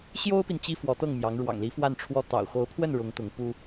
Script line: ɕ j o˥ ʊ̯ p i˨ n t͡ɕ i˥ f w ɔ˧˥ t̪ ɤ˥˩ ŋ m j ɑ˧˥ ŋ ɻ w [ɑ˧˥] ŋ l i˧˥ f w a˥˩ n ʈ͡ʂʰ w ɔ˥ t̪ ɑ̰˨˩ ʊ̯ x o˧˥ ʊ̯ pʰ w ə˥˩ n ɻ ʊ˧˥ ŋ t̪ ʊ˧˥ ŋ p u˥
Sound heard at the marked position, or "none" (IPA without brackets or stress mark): ɑ̰˨˩